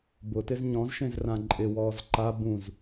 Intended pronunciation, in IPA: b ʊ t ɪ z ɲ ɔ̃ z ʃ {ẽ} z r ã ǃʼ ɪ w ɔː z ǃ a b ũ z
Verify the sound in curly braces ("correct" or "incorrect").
correct